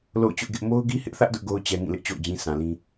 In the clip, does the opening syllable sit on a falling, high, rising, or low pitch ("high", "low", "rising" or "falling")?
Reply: falling